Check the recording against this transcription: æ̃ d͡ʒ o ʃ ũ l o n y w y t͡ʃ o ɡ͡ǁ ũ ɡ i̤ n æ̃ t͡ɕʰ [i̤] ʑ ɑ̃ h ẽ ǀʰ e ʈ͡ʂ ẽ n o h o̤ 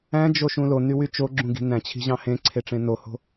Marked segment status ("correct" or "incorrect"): correct